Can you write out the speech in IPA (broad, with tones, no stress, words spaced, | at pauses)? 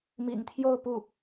mḭ˨˩ŋt̪ʰjo˥˧ʊ̯pu˥˩